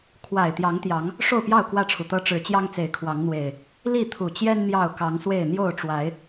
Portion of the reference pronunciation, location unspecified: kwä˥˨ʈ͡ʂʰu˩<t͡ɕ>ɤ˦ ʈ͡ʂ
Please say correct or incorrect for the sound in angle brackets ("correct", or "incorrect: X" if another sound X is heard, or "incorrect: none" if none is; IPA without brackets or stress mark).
incorrect: t̪